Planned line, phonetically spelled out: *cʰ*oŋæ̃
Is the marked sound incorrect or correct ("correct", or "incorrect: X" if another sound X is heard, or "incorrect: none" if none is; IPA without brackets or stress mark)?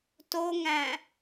incorrect: t